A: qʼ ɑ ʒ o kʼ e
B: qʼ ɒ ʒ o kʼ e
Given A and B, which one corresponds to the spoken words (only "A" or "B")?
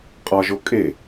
B